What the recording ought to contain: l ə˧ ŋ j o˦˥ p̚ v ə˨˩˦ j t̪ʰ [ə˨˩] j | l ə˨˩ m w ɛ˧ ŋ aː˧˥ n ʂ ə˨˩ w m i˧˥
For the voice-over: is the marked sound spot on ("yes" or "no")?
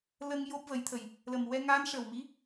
yes